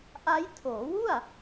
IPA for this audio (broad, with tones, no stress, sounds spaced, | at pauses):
ʔ a˦˥ j tʰ oː˩˦ w u˥˩ a̯